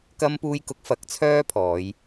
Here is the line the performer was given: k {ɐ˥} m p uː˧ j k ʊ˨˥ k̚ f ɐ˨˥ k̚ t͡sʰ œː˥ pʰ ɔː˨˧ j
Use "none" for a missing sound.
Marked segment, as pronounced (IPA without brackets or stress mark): ɐ˧